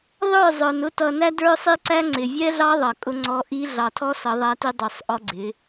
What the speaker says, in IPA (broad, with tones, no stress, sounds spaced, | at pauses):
ðˤ ə˞˦˨ zˤ ə˞˨ n ʊ˦ t ʌ˨ n æ˦ d ə˞˦ sˤ i˦ ǀ æ˦ ŋ͡ǀ ɪ˨ vʲ ɛ˦ ɮ ɑ˦ ðˤ ʌ˨ kʼ ʊ˦ ŋ͡ǀ ɔ˦ ʔ i˦ ɮ ɑ˨ tʰ ɔ˦ s ʌ˨˦ ðˤ æ˦ t i˦ dˤ ə˞˨ sˤ ʔ ɔ˦ ɡ͡ǀ ɪ˨˦